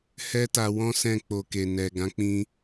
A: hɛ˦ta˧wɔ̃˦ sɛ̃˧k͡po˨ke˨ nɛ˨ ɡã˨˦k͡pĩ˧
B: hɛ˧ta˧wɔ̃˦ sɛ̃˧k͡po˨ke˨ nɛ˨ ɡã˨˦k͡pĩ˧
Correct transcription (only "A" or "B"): A